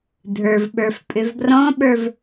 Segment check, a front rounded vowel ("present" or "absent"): present